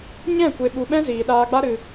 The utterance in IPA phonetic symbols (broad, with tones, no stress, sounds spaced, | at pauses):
ɲ ɛ̃˦˨ kʷ e˧ ɓ u˧ ɓ ɛ̃˦ z iː˨ ɗ aː˧ ɡ͡b a˦ ɾ ɨ˧